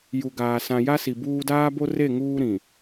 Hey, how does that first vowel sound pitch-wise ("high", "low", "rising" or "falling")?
low